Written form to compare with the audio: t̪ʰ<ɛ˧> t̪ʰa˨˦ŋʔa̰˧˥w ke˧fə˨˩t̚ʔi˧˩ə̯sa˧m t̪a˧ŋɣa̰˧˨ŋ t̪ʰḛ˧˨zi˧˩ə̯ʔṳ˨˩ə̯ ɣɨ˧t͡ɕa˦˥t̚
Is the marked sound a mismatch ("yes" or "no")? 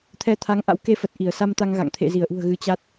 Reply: yes